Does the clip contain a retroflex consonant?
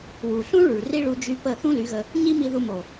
yes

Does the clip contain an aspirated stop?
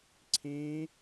yes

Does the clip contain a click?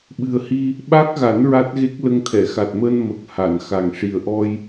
no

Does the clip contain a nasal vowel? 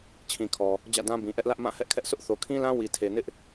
yes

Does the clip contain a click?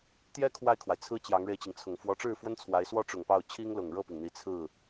no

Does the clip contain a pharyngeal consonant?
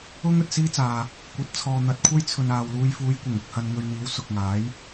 no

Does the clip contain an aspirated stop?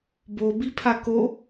yes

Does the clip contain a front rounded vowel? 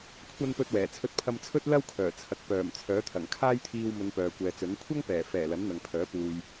yes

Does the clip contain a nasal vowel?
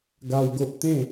yes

